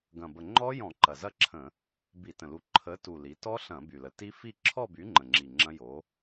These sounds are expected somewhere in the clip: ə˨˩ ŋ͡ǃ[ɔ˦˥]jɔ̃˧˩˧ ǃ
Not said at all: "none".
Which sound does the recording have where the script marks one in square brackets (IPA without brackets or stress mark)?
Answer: ɔ˦˥